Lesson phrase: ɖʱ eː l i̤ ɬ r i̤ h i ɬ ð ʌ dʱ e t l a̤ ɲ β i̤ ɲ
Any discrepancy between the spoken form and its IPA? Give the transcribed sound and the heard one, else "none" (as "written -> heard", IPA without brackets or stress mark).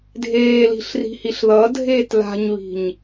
ɖʱ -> dʱ